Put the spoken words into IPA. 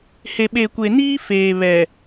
h e˨ ɓ e˨ kʷ e˨ n iː˦ f eː˨ β ɛ˨

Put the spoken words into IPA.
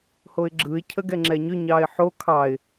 h o ɪ̯ ɡ͡ǁ ɯ ɪ̯ cʰ ə ɡ ɛ ŋ͡ǁ ɛ ɲ ʏ ɲ ɑ ɪ̯ ħ o kʰ ɑ ɪ̯

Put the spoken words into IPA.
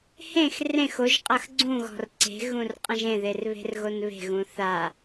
h ẽ x r ẽ x o ʒ qʼ ɐ x ɡ͡ǀ ũ ɣ ɔ̤ r ǀ e̤ ɣ ũ r qʼ ɐ̃ ʒ ẽ ð e r β e̤ r ɣ o n β e̤ ɣ ũ θ a

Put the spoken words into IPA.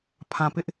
pʰ ã˨ p ɪ˦ ʔ

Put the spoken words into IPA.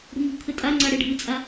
ɽ ṳ m ṳ kʰ ɘ tʼ a ŋ͡ǀ a ɽ e ɖʱ ɨ t͡sʼ a

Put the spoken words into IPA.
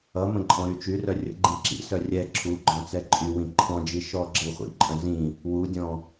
ʌ m ə̃ ǃʼ ɔ̃ ɾ y t͡ʃ y r œ rʲ ə̰ ɡ͡ǃ ĩ ǁ ḭ s œ rʲ ɛ ǁʰ u ɡ͡ǃ ɔ̃ t͡s ɛ ǃʼ y w ĩ ǃʰ ɔ̃ d͡ʒ i ʃ ɔ ɡ͡ǁ ə w χʷ ḭ ǃʼ œ̃ z ĩ | w u dʲ ɔ̃

